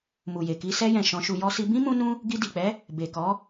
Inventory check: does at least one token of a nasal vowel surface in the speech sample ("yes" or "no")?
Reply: yes